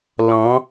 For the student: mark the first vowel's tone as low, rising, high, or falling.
rising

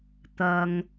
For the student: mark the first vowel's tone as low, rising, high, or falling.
low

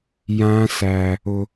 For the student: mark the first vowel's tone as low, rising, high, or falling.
high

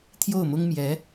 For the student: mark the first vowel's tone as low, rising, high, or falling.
falling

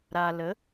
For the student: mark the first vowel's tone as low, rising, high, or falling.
low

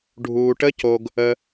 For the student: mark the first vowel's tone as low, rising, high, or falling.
low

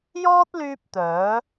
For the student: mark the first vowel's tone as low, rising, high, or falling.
high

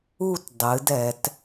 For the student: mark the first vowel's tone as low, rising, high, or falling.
falling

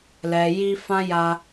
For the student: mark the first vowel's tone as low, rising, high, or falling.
low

